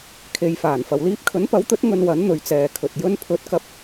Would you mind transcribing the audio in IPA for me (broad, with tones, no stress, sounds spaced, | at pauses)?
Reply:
kʰ e˨˧ j f aː˨˩ n f ɐ˨ w l iː˧ p̚ kʰ ɵ˨˥ n p ɐ˨˥ w t̪ ɵ˨˥ t̚ ŋ ɵ˧ n w ɐ˨˥ n n̪ ɵ˨˧ ɥ t͡s ɛː˨ kʰ ɵ˨ t̚ j ɵ˧ n pʰ ɵ˨˥ t̚ k ɐ˨˥ p̚